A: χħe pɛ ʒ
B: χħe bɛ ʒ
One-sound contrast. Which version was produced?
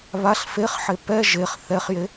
A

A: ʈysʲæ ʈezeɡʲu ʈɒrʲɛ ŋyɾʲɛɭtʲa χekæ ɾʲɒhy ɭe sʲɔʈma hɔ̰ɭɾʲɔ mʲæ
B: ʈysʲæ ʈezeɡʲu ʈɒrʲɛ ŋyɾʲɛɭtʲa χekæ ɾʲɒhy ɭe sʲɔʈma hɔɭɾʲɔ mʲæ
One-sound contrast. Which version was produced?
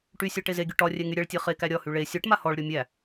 B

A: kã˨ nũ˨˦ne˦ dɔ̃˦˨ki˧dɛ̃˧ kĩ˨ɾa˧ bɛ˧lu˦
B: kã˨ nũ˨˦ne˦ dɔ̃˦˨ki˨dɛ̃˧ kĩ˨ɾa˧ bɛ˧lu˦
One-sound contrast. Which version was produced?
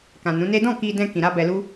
A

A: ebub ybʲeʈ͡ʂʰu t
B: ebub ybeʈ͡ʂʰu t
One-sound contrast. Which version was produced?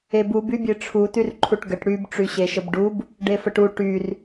A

